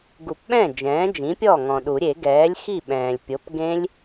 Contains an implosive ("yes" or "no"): yes